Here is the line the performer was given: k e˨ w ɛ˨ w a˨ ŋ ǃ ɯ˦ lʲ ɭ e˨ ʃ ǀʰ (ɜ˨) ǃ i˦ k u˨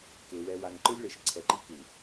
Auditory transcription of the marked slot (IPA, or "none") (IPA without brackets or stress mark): ɛ˨